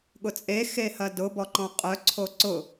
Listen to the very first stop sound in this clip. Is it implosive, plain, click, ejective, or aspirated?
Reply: implosive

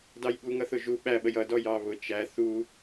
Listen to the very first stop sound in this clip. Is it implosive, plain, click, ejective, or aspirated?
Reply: plain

